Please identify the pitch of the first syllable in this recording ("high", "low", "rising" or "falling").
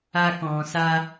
high